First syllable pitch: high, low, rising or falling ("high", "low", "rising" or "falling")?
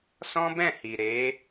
high